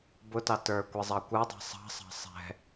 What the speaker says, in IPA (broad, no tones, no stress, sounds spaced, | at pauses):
b ʊ t ɑ t ə˞ kʷ ɛ zˤ ɑ kʷ ə˞ dˤ ɛ̤ sˤ ɑ̤ sˤ ɑ̤ sˤ ɛ̤